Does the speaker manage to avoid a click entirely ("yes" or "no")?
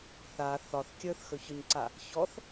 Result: no